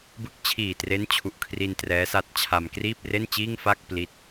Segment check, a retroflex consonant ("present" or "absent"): absent